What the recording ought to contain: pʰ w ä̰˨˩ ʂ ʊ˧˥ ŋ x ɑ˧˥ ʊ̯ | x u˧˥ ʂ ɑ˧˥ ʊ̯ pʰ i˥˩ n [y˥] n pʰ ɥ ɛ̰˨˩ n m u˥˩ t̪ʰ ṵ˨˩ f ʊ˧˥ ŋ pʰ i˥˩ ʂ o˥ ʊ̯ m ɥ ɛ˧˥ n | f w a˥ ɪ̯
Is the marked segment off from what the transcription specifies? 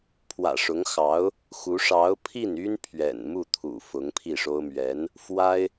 no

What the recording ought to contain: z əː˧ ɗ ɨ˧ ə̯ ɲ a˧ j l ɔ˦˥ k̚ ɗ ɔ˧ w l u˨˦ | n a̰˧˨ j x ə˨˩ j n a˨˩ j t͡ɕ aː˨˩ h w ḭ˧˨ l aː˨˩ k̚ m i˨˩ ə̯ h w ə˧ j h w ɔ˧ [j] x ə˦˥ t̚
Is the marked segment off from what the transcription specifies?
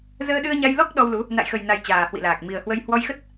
no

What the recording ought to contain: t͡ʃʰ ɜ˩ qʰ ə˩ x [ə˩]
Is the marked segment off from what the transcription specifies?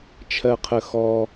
yes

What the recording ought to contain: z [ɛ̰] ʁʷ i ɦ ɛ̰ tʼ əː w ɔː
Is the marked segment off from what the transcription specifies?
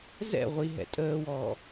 no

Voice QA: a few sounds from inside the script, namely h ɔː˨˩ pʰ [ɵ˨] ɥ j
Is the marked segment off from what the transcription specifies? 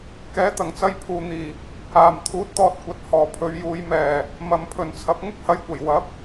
yes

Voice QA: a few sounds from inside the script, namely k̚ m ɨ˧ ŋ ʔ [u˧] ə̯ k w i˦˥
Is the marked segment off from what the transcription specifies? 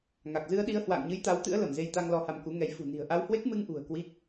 yes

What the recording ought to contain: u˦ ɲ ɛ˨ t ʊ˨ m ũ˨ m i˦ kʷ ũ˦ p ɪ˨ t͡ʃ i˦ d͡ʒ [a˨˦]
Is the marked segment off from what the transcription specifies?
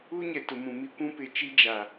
yes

